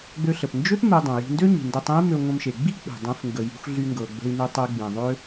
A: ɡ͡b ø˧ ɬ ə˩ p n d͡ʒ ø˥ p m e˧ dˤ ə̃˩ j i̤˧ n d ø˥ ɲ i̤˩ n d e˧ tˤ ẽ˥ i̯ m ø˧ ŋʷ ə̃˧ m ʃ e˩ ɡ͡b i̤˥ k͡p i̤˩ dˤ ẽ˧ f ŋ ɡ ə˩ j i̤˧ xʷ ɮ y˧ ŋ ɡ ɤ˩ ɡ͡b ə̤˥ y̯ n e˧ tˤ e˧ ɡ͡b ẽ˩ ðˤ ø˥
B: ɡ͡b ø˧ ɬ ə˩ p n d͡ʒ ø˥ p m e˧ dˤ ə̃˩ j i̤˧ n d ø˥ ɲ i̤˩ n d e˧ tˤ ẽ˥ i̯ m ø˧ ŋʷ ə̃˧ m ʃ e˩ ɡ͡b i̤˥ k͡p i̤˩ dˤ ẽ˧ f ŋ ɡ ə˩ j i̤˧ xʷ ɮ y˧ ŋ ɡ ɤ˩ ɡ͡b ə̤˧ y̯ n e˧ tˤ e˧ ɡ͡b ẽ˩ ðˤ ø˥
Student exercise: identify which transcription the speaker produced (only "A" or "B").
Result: B